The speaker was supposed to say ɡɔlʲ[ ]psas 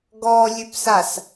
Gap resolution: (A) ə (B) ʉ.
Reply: B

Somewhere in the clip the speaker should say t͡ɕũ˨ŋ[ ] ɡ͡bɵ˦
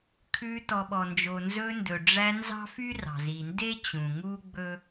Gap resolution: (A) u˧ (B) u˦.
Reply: B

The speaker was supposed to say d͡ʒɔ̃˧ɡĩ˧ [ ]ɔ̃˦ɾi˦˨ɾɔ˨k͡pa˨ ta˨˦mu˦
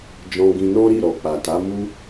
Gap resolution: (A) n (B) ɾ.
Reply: A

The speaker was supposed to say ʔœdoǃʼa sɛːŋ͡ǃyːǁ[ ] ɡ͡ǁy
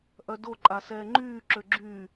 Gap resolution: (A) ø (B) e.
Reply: A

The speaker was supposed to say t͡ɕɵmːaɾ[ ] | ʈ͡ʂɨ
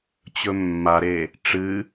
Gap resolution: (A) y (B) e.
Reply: B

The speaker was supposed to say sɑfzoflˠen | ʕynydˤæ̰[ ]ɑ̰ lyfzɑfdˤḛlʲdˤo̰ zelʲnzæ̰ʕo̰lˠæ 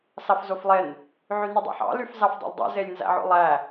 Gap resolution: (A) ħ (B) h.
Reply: A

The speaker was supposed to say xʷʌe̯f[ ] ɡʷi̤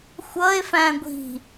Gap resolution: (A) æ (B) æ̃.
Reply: B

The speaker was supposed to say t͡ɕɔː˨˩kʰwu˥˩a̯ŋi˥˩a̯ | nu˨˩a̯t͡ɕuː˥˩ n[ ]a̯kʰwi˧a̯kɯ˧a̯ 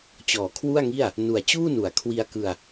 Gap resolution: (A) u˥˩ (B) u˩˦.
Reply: B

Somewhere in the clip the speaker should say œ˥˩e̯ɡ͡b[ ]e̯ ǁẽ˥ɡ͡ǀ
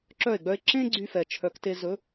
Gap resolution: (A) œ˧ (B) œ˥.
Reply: B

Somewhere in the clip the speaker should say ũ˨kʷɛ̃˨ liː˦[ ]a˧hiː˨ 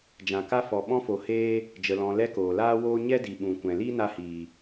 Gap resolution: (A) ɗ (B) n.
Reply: B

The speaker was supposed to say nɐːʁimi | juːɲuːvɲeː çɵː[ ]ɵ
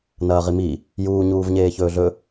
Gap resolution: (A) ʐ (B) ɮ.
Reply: B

